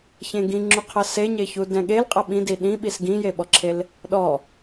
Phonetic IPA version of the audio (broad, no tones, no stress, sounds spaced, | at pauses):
ç ẽ ɡ ĩ ŋ͡ǁ u qʰ ʌ s e ɲ e ç u d ɛ̃ ɠ e l qʼ ʌ ɓ ĩ d i ɗ ĩ ɓ i s ɡ ĩ j e ɓ ɔ ǁʰ e l | ɗ ɔ